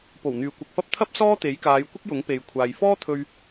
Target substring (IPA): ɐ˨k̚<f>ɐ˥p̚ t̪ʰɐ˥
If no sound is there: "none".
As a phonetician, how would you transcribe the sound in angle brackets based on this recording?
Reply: f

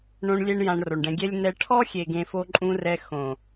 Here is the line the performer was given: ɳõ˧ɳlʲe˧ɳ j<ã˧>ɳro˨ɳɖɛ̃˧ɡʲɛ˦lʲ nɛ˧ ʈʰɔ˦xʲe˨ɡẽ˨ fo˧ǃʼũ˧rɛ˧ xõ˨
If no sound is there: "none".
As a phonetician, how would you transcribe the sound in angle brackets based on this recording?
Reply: ã˧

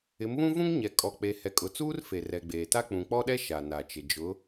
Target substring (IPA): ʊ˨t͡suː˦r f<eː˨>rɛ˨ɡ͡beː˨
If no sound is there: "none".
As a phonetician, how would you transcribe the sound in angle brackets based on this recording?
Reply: e˨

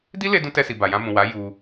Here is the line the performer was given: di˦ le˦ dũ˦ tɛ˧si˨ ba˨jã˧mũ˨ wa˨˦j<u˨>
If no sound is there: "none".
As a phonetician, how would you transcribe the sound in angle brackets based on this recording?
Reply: u˧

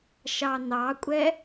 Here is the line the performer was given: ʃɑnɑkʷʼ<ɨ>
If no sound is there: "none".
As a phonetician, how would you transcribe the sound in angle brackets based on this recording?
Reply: ɛ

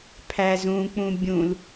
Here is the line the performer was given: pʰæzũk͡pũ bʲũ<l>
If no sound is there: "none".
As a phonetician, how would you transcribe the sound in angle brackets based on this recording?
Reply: l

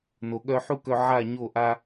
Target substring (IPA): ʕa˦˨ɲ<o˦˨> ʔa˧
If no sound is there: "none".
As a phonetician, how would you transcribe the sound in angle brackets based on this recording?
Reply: o˦˨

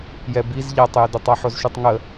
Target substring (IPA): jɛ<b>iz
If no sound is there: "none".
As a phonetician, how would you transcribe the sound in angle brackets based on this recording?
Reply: b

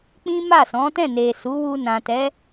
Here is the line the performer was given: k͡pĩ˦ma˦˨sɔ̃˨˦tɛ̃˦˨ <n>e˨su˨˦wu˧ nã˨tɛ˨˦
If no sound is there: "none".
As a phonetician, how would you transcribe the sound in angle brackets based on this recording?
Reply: n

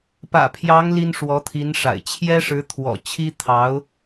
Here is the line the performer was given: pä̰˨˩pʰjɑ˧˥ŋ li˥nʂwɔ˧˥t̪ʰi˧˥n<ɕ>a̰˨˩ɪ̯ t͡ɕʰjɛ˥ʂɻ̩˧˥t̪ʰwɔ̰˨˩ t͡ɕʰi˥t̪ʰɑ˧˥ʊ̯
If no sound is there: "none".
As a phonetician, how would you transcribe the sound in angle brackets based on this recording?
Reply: ʂ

